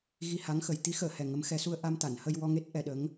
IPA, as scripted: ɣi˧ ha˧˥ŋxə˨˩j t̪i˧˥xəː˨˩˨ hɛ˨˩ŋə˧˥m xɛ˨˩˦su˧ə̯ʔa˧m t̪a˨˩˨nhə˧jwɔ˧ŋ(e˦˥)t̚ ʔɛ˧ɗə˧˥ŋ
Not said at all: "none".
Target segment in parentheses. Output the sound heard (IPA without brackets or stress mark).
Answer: e˦˥